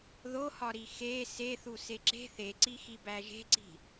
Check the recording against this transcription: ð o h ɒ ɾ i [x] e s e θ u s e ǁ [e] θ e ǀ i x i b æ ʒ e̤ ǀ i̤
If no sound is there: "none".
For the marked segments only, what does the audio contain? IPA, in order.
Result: x, e̤

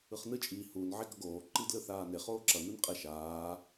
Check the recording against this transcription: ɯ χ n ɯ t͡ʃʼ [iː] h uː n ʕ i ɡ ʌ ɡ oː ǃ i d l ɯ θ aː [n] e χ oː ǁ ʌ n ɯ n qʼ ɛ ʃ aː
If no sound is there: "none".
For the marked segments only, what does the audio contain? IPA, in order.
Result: iː, n

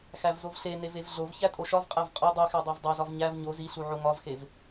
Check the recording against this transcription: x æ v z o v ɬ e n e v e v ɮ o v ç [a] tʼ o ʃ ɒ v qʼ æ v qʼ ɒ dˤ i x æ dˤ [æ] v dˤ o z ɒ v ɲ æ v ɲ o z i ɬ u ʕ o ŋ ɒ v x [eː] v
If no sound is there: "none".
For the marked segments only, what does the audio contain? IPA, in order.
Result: æ, æ, e

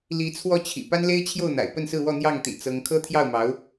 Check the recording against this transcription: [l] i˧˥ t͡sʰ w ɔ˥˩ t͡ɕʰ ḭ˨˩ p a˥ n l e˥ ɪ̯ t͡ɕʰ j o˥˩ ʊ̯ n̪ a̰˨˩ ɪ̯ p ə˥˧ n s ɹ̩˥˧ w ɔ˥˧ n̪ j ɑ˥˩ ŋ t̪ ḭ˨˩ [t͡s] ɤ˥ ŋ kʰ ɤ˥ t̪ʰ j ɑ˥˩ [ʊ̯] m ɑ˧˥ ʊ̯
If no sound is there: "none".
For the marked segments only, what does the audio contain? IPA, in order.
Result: l, t͡s, ʊ̯

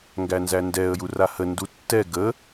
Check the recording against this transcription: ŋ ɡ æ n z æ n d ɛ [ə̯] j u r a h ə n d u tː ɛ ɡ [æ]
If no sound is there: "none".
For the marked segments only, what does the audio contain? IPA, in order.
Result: ə̯, ə

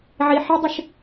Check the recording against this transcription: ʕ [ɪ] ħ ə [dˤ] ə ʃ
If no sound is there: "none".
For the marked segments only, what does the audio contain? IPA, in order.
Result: i, dˤ

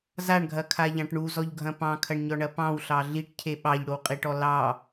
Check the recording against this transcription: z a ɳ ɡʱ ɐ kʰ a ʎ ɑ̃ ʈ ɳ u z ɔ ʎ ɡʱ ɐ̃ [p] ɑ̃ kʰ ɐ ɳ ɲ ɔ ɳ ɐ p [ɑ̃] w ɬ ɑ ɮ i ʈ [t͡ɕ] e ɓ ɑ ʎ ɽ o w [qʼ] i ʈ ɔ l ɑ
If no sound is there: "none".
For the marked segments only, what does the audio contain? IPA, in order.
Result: p, ɑ̃, cʰ, qʼ

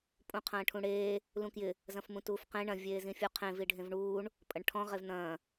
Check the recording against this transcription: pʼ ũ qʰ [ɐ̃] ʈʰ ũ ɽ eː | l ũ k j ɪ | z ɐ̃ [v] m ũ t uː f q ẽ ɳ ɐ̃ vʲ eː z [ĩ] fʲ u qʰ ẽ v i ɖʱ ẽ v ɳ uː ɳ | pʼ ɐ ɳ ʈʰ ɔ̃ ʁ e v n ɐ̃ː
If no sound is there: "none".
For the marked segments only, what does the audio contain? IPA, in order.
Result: ɐ̃ː, f, ĩ

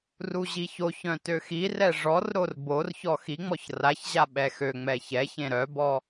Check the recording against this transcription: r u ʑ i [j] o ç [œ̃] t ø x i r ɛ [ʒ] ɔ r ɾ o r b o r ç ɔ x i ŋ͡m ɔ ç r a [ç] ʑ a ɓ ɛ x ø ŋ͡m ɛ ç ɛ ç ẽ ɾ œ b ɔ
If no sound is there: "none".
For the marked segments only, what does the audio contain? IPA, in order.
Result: ç, œ̃, ʐ, ç

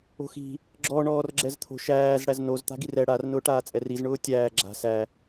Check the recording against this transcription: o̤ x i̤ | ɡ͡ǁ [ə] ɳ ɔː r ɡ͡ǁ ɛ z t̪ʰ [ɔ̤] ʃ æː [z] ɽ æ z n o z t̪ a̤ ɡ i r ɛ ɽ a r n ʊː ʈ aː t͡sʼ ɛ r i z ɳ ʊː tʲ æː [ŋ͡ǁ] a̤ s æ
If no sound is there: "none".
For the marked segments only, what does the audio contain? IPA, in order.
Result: ɔ, o̤, z, ɡ͡ǁ

